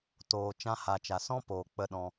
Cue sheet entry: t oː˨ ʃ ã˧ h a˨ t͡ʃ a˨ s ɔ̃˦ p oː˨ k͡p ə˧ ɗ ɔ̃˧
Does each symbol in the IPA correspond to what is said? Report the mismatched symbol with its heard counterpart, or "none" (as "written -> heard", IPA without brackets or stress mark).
ʃ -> t͡ʃ